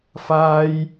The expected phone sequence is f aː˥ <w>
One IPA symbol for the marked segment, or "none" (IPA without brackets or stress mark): j